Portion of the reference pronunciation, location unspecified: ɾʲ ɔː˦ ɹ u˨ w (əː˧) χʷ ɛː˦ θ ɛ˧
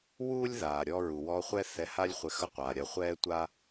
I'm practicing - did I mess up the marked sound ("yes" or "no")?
yes